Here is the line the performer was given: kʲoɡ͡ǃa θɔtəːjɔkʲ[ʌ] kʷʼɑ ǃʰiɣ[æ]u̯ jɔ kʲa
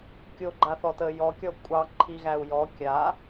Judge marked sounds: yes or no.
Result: no, yes

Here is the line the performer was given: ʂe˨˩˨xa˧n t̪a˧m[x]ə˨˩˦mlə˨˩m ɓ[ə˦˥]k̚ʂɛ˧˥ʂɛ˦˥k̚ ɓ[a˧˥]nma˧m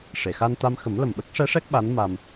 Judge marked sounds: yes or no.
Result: yes, yes, yes

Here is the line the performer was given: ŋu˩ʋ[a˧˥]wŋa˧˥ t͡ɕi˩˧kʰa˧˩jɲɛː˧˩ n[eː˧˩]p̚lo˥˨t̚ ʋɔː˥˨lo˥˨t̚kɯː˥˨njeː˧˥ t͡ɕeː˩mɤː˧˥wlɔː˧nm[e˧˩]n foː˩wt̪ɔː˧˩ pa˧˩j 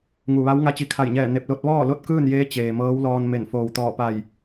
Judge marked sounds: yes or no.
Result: yes, no, yes

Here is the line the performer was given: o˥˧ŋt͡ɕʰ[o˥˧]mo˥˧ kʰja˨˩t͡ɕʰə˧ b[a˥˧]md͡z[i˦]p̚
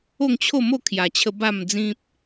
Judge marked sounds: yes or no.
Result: yes, yes, no

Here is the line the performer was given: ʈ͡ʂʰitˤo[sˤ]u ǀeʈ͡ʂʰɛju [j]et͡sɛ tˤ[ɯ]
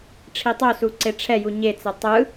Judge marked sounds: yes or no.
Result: no, no, yes

